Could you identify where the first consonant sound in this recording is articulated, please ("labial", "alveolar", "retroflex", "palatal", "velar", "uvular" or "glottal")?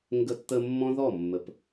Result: velar